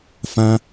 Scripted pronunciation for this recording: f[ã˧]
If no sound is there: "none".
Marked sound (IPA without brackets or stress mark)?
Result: ã˧